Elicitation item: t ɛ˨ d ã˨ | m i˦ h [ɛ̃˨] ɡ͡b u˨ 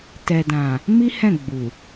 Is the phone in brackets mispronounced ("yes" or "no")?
yes